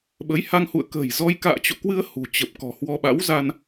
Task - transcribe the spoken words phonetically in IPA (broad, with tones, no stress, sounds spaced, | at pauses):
ɓ ə˨˦ j h a˧ ŋ h ṵ˧˨ ə̯ k ə̤ː˨˩ j z ɔ˧ j k a̰ː˧˨ t͡ɕ o̰˧˨ k w ɨ˧ ə̯ h ṳ˨˩ t͡ɕ ə˨˩ p̚ k ɔ̤˨˩ h w ɔ˧ ɓ a̰˧˥ w z a˧ n